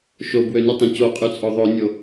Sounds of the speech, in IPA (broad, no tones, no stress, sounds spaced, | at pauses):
ʃ o b w ø n y tˤ ẽ c o qʼ y t͡sʼ o ðˤ o nʲ o